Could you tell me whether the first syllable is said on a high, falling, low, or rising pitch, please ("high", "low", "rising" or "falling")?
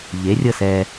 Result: rising